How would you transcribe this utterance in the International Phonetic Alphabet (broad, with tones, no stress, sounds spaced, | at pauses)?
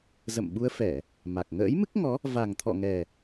z ə̰˧˨ m ɓ u˧ ə̯ f ɛ˧˩˨ | m a˨˩ k̚ ŋ ə̰ː˧˥ j m ɨ˦˥ k̚ ŋ ɔ˨˦ | v a˨˩ ŋ t̪ʰ ɔ̰˧˨ ŋ ɛ˨˩